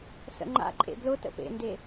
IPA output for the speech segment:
sə̰ŋ͡ǃa̰ǃʼḛ blʊ tə̰pḛnde

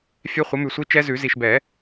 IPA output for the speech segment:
fʲɛ˦˥χʷə˨˥mʉ˨sʷi˦˥ t͡ʃɛ˦˥zʉ˨˩˦ zi˨ʃbɛ˨˩˦

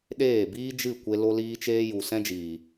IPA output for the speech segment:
ɗeː˦˨biː˦ d͡ʒɨ˦˨kʷe˧ lo˦liː˦t͡ʃeː˦ ju˨ sɛ̃˦d͡ʒiː˨

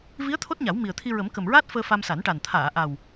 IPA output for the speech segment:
vi˧˥ə̯ t̪ʰo˦˥t̚ɲa˨˩˦w mi˨˩ə̯t̪ʰi˧ ɹə˨˩˦m kə˨˩mɹaː˦˥t̚ fəː˧fa˧msa˨˩˦nʈa˨˩n t̪ʰaː˨˩˨ʔa˨˩w

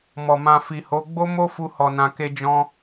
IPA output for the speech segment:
mɔ˨mã˧ fi˨ho˨˦ ɡ͡bo˦mo˦ fu˧hɔ˨nã˨ ke˧d͡ʒɔ̃˧

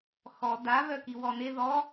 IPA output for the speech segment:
xɔ da βœkiwɔne ðɔ

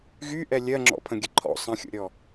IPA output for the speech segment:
ɣyʔɛ lʲɜŋ͡ǁɔ̰pʰə̃ɡʲə ǃʰɔ̰ sˤə̃xʲo̰ɾʲɔ

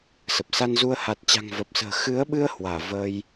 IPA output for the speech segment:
sə˨˩p̚sa˧nzu˧ə̯ ha˨˩t̚t͡ɕa̤˨˩ŋ və˨˩p̚sə̤ː˨˩ xɨ˨˦ə̯ɓɨ˧ə̯ hwaː˧˩vəː˧j

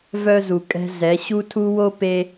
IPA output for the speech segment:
vœ˦zu˨kʼɛ̤˦ zɛ˨˦ ɕu˦tʰu˦wo˦ pe˦

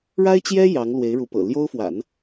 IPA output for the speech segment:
ɻa˥ɪ̯t͡ɕjɛ˥ jɑ˧˥ŋlwe˧˥ɪ̯ɻu˧˥pɤ̰˨˩ ljo˥ʊ̯ fwa̰˨˩˦n

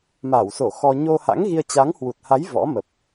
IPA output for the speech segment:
maː˧˩wso˧˩ xɔ˧ ɲo˧ha̰˧˥ŋɣi˧ə̯ t͡ɕa˨˦ŋhwu˨˩t̚ha˨˦j vɔ̰˧˥mə˨˩p̚

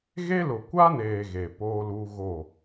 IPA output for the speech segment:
ɣe˦ lʊ˨kʷa˦neː˨ ɣe˨poː˦luː˦ ɣo˦˨

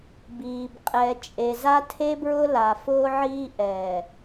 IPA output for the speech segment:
biː˨b qʼɛ˨ t͡ʃʼe˨za˦tʰe˦ bɹʊ˦la˨fʊː˦ʕiː˦ ʔɛː˨

